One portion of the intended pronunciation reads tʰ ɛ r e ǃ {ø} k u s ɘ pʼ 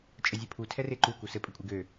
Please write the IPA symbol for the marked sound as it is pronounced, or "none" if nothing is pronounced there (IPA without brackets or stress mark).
u